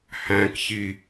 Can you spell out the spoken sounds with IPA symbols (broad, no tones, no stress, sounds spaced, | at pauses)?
h æ̃ k ç i